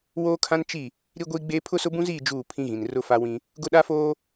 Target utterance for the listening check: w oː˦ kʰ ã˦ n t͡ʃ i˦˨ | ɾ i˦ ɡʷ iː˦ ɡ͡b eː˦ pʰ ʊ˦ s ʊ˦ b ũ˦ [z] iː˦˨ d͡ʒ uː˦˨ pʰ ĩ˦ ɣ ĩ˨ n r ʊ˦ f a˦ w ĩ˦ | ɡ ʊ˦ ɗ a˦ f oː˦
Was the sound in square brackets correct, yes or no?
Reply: yes